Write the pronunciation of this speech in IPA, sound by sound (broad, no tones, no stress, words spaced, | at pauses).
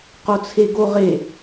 qot͡sʰeɡoʁe